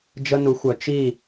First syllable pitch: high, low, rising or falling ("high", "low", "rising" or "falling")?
high